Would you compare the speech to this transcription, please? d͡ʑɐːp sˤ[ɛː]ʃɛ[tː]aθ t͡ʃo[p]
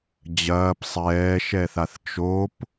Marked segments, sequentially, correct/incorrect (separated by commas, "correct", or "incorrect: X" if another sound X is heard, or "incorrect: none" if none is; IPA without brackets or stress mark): correct, incorrect: θ, correct